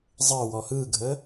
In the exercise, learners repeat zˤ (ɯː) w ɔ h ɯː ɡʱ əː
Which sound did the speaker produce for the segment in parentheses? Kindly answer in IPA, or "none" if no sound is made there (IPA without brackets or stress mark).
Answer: əː